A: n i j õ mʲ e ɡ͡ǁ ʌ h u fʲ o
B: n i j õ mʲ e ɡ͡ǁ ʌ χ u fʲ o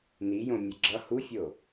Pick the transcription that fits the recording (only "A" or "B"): A